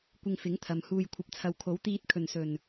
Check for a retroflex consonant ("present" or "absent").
absent